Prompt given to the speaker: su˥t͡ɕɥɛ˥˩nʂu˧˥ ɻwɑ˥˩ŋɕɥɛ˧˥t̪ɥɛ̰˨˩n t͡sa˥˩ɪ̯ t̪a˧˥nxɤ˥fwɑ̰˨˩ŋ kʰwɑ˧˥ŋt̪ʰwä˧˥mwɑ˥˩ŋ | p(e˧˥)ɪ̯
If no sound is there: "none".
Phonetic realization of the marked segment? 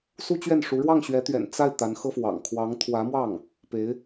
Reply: e˧˥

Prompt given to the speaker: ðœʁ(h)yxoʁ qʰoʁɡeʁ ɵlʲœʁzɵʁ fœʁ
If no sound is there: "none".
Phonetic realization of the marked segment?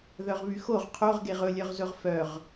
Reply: β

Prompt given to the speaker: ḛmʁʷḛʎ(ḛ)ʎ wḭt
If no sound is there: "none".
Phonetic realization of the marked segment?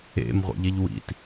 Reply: e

